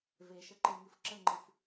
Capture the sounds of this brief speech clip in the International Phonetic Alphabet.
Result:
veʃəǃeŋɨf ǁəŋ͡ǃɨf

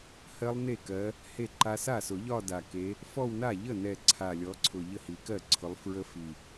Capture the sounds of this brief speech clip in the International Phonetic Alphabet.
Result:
hɜ˦˥lˠne˥˩kɜ˨˦ | he˥˩ǃa˦˥ sa˥˩sʊ˨˩˦ʎɒ˥˧ da˨˩ke˨˦ | fɔ˥˧wna˥˩ ʎə˥˩nɛ˨˩ ǀʰa˨˩lʲɔ˨˦ǀʰʊ˨˩ ʎə˥˩hi˨˩˦kɜ˥˩ǀʰʊ˨˦lˠ fɹə˦˥fi˨˩

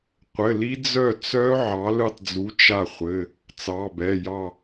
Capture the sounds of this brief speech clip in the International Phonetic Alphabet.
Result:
qʷɘ˩˧˩li˦˥ d͡zœ˦˨t͡sœ˦˥ ʕɑ˨˥lɯ˦˨tˤd͡zu˨˥ t͡ʃa˦˨χʷɘ˩˧˩ | t͡sɑ˩˧˩bɛ˩˧˩jɑ˦˨

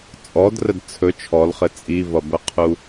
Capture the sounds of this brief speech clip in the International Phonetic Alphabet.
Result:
t͡sʼɔdrəd t͡sʰɵ t͡ʃʰɔlχɘ t͡sʼivʌbəqʰu

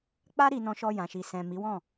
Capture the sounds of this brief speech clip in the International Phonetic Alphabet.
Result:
k͡pa˦ ɾi˧nɔ̃˧ʃɔ˧ jã˨ʃi˨sɛ̃˨ mi˨˦wɔ̃˦˨

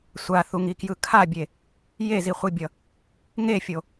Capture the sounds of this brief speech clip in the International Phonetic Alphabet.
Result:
sʷaθuŋikjɯ kʰabʲe | jeziχʷibʲʌ | ŋefʲo

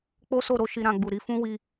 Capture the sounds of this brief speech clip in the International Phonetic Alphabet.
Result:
k͡po˦so˦˨ɾo˧ ʃi˧ɾã˧ɡ͡bu˨ɾi˨˦ fũ˦wi˧

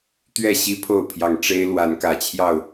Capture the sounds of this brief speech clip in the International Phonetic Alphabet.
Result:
t̪ɥɛ˥˨ ɕi˦pʰo˥˨ʊ̯pʰjɑ˨˩ŋ ʈ͡ʂe˦ɪ̯ lwa˨˦nkä˨˩t͡ɕʰjɑ˥˨ʊ̯

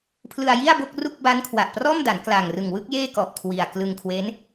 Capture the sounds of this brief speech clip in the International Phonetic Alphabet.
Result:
pʰlɯ˧a̯ji˥˩a̯bo˥˩k̚ru˥˩k̚ ba˦˥nkʰwa˨˩ʔprɔː˥˩mda˩˦n kla˨˩ŋrɯ˨˩ŋwɯ˥˩k̚ jeː˥˩kɔ˨˩ʔkʰwi˨˩a̯ klɯ˧ŋkʰwe˦˥n

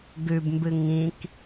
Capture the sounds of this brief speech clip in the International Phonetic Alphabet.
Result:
ɡʉbmbɨ ŋĩk

